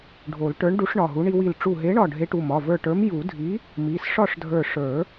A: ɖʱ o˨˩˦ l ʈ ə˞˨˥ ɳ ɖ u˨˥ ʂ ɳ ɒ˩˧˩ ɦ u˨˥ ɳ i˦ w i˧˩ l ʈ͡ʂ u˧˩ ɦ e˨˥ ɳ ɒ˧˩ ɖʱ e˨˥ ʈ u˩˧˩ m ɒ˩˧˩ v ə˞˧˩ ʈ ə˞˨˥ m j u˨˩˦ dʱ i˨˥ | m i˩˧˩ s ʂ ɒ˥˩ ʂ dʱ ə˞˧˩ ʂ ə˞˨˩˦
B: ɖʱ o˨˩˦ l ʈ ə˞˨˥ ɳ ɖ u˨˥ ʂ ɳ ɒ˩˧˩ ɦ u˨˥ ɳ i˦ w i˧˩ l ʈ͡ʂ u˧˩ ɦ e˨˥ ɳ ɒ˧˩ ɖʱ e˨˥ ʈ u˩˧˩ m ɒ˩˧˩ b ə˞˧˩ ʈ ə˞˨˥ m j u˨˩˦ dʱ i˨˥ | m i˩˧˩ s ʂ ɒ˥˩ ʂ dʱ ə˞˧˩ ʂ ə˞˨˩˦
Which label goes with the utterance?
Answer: A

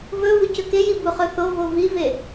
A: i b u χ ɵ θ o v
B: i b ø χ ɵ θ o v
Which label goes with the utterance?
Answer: A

